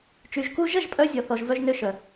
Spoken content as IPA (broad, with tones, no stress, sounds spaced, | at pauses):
t͡ʃ y˨ ʒ k u˧ ʒ ə˦˨ ʒ pʼ œ˧ zʲ ɔ˦ θ ɔ˦ ʒ v œ˦ ʒ n ø˦ ʃ œ˨